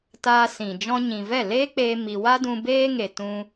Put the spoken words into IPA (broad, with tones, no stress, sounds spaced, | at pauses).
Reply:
t aː˦ s ĩ˨ d͡ʒ ɔ̃˦ ɲ ĩ˨ v ɛ˦˨ l eː˦ k͡p eː˧ m i˧ w a˦ d ũ˧ b eː˦ ŋ e˨ t ũ˧